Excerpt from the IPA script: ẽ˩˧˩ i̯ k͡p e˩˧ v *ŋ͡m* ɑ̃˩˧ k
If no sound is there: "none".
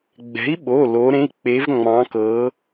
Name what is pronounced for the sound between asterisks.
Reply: ŋ͡m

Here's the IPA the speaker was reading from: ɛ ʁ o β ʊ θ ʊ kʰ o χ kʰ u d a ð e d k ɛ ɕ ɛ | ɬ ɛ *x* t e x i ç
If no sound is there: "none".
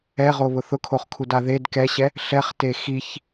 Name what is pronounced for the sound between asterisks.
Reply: χ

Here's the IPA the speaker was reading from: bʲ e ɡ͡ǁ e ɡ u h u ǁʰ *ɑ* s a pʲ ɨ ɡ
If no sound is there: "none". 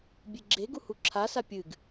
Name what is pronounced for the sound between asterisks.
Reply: a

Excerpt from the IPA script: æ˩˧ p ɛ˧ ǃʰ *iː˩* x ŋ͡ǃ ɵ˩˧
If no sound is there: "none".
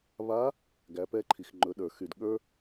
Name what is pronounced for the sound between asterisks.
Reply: i˩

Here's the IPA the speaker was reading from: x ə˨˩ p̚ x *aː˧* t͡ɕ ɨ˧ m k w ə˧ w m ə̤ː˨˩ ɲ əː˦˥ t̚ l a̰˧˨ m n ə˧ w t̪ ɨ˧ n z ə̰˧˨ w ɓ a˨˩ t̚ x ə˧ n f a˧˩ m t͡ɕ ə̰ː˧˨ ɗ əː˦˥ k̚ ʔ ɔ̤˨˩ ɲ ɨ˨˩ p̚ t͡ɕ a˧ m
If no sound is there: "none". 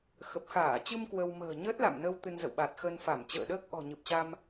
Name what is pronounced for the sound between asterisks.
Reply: aː˧˩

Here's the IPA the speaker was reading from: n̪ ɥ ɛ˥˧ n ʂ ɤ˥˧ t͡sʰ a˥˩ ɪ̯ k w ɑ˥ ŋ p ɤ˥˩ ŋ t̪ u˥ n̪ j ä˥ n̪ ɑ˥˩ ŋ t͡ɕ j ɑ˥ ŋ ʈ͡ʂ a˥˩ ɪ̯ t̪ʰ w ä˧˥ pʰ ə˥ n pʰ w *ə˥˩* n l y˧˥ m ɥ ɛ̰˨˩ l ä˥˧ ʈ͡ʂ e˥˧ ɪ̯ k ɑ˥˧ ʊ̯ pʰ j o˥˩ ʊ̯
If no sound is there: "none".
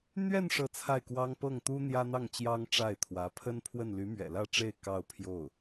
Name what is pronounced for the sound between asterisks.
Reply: ə˥˩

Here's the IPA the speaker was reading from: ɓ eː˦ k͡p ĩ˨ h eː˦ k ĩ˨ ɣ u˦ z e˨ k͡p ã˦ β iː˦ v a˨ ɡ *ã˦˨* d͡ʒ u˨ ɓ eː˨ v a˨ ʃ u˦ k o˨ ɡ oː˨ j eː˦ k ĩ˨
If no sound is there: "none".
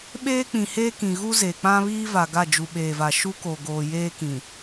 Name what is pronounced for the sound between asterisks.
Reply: a˦˨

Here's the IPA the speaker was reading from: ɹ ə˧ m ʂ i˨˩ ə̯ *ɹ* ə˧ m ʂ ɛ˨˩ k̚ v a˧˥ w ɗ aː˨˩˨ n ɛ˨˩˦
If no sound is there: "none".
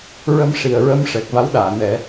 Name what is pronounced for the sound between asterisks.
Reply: ɹ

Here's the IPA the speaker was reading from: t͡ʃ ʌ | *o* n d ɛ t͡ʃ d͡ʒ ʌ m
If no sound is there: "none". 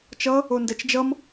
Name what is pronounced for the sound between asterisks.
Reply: o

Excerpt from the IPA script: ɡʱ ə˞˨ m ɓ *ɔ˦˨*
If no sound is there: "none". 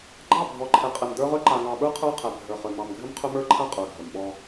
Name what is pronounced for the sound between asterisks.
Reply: ɔ˦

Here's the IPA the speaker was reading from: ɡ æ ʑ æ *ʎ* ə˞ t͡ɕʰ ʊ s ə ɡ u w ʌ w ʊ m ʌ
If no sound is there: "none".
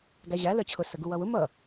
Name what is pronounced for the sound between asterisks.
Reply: l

